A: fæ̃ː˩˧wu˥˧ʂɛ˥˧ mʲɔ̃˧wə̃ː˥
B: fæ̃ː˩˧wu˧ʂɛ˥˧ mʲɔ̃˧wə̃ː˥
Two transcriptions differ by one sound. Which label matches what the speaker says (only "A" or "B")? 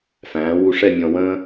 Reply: B